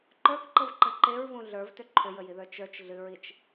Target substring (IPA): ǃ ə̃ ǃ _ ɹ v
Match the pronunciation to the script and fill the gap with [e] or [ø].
e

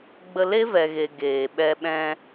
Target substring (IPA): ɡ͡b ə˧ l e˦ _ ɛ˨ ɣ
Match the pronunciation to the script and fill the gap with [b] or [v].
v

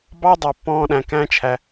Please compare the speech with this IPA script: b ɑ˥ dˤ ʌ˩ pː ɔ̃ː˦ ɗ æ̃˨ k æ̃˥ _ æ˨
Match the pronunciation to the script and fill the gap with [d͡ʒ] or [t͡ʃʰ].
t͡ʃʰ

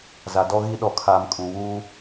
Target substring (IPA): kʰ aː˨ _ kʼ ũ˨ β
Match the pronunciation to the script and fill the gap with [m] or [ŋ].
m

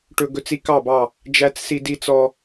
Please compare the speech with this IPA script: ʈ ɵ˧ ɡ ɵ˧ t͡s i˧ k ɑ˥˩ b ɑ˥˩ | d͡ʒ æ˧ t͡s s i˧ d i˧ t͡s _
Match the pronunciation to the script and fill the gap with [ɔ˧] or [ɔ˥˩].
ɔ˧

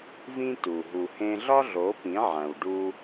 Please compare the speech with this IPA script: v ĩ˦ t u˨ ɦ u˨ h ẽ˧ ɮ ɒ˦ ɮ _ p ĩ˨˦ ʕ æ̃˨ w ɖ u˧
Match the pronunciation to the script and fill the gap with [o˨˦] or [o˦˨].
o˨˦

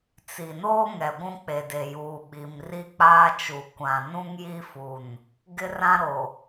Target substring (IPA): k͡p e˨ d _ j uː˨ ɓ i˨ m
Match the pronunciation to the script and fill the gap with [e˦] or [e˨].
e˨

